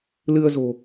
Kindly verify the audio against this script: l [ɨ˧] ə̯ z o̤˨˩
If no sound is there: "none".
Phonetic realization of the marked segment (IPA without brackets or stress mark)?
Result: ɨ˧